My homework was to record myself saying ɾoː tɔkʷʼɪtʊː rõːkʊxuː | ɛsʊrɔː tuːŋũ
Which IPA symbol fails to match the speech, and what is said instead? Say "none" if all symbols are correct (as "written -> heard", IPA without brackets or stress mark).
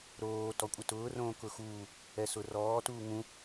none